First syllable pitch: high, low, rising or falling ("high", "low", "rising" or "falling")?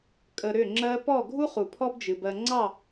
low